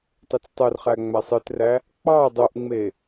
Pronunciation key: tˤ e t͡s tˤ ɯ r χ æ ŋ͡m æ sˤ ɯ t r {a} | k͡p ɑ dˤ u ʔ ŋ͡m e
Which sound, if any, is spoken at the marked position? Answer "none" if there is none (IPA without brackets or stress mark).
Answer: æ